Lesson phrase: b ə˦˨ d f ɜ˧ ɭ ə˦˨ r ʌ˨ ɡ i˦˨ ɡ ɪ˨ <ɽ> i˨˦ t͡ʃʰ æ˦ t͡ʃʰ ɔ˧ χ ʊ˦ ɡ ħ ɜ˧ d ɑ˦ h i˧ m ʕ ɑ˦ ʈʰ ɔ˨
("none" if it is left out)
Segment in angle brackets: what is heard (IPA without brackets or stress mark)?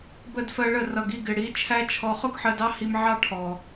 ɽ